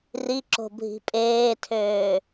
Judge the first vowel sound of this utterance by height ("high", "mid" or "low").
high